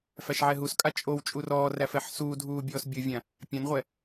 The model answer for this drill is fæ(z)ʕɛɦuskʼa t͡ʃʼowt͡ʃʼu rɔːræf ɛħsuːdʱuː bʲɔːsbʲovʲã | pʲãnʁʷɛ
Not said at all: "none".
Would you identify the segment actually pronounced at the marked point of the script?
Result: ʃ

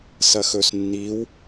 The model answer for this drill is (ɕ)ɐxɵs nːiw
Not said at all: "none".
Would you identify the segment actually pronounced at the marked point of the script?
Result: s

